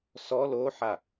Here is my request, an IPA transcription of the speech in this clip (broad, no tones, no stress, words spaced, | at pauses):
sɔ loħa